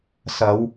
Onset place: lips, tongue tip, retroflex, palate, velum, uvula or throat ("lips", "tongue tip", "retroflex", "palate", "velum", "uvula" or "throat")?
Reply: tongue tip